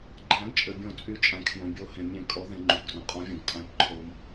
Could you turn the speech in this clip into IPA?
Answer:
ɡ͡ǃ æ̃˨˩˦ ɡ t͡ʃʼ ɘ˩ bʲ õ˨˩˦ t͡sʼ y˨˩˦ t͡ʃʼ æ̃˩ kʰ j õ˩ bʲ o˨˩˦ h ẽ˩ mʲ ẽ˨˩˦ kʼ ɔ˨˩˦ ð ẽ˩ ŋ͡ǃ y˩ p ɡ r õ˩ qʼ ɔ̃˨˩˦ vʲ õ˩ ɡ tʼ æ̃˨˩˦ p ǃʰ o˩ m

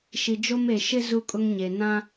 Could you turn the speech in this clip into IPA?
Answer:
ʃ i˨ d͡ʒ o˦ m e˨ ʃ ɪ˦ z u˦ kʼ ʊ˦ ŋ ɲ e˨ n ã˦

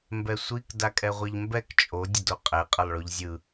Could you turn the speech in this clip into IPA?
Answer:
m b ɛ sʷ i k d a kʼ ɛ ʁʷ ɛ ʎ m b ɛ k t͡ʃʼ o dʲ ʌ d o qʼ ɛ qʼ ʌ lˠ ɭ o ʎ zʲ ɯ

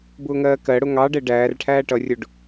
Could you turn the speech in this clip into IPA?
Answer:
b ʊː ŋ ɜː k ɜ ɽ ʊ ŋ ɑ ɖ ɛ ɖ æː r ʈʰ æː ʈ ʌ rʲ ʊ ɖ

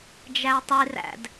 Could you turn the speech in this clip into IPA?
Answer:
d͡ʒ æ tˤ i r æ̰ d

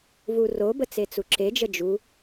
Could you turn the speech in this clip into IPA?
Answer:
v u r o b ə t͡s e t͡s u ǁ e d͡ʒ ə d͡ʒ u

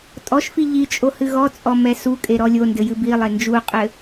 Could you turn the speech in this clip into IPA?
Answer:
tʼ ɔ ʃ f i ʎ i t͡ʃʼ o h ɨ ɣ ɔ t͡sʼ ɔ m ɛ s u kʼ e ɾ ɔ lʲ o n d ɘ j ɨ b i lˠ e n d͡ʒ u qʼ ɘ

